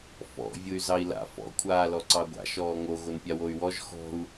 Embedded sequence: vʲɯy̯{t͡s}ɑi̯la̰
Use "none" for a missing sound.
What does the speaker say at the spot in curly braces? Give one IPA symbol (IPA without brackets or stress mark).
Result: z